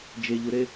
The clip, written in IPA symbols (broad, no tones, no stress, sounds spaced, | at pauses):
d͡ʒ e ʎ u ɾ e